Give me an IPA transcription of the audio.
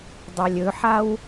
dˤ a lʲ ɵ ħ a w

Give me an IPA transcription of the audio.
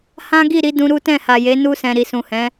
h ã˦ ɡ i˦˨ ɾ i˧ d ũ˧ ɾ u˦ t ɛ̃˦˨ h a˨ j e˨˦ n u˧ s ɛ̃˨ ɾ i˨ s ũ˨ h ɛ̃˨˦

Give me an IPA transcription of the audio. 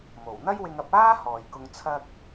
m o˨˩ w n̪ ɐ˥ j w ɪ˧ ŋ ɐ˧ p̚ aː˥ h ɔː˧ j k ʊ˥ ŋ t͡sʰ ɐ˥ k̚

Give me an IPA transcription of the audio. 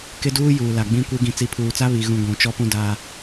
k ɪ˦ d uː˦ j uː˨ l a˨ ɡ͡b ĩ˦ kʷ e˦ ɡ ĩ˨ t͡s i˨˦ pʰ uː˨ t͡s a˦ β i˨ ɣ ũ˦ ɡʷ ũ˨˦ t͡ʃ ɔ˦ p ũ˦ d a˦

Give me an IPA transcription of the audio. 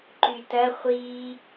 ǃ y t ɐ χʷ i

